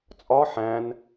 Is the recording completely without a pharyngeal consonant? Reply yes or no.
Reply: no